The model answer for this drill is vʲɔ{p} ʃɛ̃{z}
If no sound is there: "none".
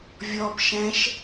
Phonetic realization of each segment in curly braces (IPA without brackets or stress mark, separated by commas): p, ʃ